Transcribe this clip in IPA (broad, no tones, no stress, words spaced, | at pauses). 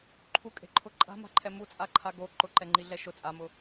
ǃʰukʼe̤ǃʰʊ ǃʼa̤ma̤ǃʰɛ mut͡sʼaǃʰa ɡo ǃʊǃɛŋ͡ǃiɮɛ ʃʊ t͡sʼamʊ